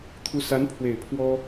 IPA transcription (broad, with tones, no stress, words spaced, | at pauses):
t̪ʰu˧˥sa˧˥n pʰwe˨˩ɪ̯pʰwɔ˥